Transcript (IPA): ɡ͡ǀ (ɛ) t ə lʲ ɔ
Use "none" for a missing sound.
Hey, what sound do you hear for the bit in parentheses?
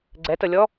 ɛ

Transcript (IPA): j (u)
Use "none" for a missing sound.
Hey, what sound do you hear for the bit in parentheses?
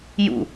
ṵ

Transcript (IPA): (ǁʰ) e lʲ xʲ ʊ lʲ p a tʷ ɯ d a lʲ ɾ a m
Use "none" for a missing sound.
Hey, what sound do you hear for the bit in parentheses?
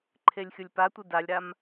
ǃʰ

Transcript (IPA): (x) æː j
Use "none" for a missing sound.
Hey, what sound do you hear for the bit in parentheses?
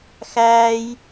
x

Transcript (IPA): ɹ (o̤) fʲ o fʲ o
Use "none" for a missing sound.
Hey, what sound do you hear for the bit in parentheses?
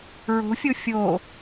o̤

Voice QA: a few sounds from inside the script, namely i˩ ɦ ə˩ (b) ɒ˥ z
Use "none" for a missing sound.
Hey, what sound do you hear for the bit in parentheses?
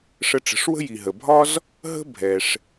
bʱ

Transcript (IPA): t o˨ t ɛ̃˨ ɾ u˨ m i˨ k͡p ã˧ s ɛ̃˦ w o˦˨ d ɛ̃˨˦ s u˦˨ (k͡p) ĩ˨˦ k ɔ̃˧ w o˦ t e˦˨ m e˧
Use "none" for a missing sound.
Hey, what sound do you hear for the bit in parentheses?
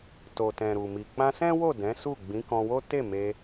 ɡ͡b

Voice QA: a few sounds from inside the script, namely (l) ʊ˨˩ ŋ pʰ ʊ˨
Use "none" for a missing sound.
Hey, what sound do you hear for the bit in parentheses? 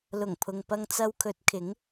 l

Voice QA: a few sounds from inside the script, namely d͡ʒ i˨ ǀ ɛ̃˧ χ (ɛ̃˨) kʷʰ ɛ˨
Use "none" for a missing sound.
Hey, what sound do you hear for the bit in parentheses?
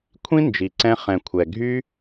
ɛ̃˨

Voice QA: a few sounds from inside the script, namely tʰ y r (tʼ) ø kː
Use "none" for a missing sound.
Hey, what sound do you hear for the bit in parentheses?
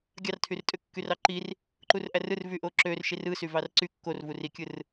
tʼ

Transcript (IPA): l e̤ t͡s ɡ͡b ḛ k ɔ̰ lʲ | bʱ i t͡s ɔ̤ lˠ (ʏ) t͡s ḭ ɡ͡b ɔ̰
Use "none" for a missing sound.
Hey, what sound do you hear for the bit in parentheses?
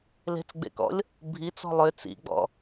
ʏ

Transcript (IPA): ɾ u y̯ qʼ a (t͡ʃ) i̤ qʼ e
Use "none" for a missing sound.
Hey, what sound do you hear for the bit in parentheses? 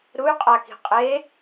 k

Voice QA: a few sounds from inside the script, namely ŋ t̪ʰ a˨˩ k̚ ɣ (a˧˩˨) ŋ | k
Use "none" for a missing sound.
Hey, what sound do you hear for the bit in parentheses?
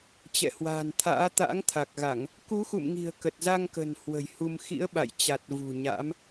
a˧˩˨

